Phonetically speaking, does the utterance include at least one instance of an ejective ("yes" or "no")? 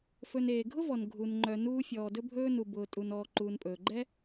yes